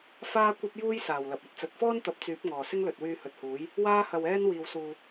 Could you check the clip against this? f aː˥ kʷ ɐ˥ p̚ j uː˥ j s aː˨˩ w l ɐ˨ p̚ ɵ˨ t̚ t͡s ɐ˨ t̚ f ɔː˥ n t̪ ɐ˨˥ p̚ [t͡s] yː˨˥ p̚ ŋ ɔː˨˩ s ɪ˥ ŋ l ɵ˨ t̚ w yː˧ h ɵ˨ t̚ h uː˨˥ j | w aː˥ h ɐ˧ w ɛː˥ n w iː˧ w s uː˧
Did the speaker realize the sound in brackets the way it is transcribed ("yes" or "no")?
yes